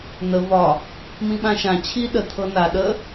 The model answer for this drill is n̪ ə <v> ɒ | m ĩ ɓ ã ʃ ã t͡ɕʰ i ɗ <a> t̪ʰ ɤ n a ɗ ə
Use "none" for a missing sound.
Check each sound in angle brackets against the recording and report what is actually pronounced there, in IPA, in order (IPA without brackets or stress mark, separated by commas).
v, ə